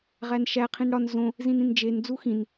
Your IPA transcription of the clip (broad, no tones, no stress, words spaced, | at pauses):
ʁænʃæ qʰĩnɽɒn zõ | zĩnĩnd͡ʒen d͡zuxĩn